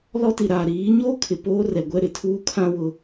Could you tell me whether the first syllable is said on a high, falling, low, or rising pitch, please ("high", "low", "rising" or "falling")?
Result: high